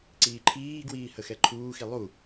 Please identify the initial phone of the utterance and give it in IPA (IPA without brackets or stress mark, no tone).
ǀ